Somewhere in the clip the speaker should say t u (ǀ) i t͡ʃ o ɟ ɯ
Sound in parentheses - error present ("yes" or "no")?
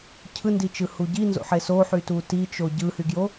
yes